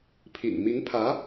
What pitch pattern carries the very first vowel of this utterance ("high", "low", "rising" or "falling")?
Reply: low